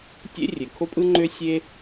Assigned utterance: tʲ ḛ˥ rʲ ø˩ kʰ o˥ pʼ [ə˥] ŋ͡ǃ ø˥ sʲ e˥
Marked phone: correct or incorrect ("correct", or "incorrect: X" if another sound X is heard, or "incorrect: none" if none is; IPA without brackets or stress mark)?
incorrect: ɯ˥